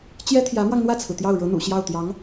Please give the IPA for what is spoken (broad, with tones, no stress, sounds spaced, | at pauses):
t͡ɕ j ɛ˥ t̪ʰ j ä˧˥ m w ɑ˧ ŋ n̪ w ä˥˩ t͡sʰ ɹ̩˩ t̪ j ɑ˥˩ ʊ̯ ɻ ɤ˧˥ n̪ ṵ˨˩ ɕ j ɑ˥˩ ʊ̯ t̪ j ɑ˧˥ ŋ